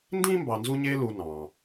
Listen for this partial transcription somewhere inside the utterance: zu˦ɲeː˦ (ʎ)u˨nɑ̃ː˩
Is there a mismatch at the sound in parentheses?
yes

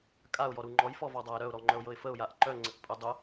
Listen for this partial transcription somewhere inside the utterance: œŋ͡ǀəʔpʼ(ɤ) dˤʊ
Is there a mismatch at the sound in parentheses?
yes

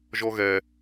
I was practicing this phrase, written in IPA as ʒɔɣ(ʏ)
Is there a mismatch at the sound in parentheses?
yes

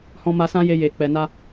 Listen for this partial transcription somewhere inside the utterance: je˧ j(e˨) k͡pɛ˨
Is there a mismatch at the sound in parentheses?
no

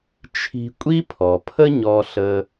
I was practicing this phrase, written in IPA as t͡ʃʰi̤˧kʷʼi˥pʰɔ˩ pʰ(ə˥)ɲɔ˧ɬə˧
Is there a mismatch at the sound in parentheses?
no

